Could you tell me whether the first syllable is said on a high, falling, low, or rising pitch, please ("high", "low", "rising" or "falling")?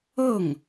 falling